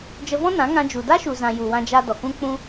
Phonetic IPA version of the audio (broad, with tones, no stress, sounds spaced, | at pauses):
d͡ʒ ə˧ v ɔ̃˦ n ã˨˦ ŋ ã˧ d͡ʒ u˨ d a˦ ʃ u˨ z ã˨ j u˨ w ã˧ d͡ʒ a˧ d ɔ˨ k ũ˦ k͡p ũ˦